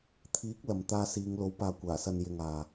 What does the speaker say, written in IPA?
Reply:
t̪ʰ iː˨˥ k̚ l ɐ˨ m t̪ aː˧ s iː˨˧ ŋ l o˨˥ w p aː˨ kʷ aː˨˩ s ɐ˨ n j ɪ˨ ŋ aː˨

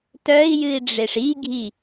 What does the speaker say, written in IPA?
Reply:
t œ i̯ j ɨ i̯ ɖ͡ʐ e ʂ i ɡʱ i

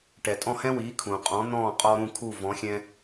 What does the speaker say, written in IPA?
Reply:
ʈ ɛ˩ tʼ ɔ̃˥˩ h ɛ̃˥ w iː˩˥ kʰ ũ˩ qʼ ɔ̃˩˥ n̪ ɔ̃ː˥˩ qʼ ɔ˧ ɾ ũ˥˩ kʰ u˥˩ v ɔ̃˩˥ xʲ ɛ̃˧

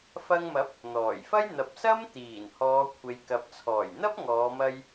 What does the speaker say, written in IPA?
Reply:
f ɐ˧ ŋ m ɐ˨˥ p̚ | n̪ ɔː˨˩ j f ɐ˥ j n̪ ɐ˨ p̚ s ɐ˥ m t̪ iː˨˩ n h ɔː˨˧ kʷʰ e˨ j k ɐ˨ p̚ t͡sʰ ɔː˨˩ j n̪ ɐ˥ p̚ ŋ ɔː˨˧ m ɐ˧ j

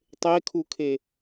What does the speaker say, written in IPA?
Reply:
tˤ e kʰ u kʰ e

